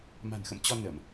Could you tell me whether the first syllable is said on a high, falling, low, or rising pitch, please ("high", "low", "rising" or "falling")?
low